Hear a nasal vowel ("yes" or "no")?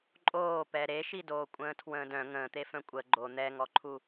yes